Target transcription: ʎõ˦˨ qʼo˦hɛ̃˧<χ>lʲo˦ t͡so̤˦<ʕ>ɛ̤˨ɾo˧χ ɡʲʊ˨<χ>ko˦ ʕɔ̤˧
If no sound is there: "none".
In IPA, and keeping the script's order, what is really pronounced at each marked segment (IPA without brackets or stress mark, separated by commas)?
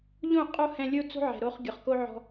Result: none, ʕ, χ